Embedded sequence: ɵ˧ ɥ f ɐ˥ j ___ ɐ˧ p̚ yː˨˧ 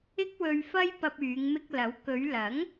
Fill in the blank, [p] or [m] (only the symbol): p